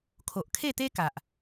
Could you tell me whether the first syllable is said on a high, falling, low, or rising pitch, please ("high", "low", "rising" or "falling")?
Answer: low